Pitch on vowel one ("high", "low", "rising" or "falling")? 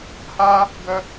high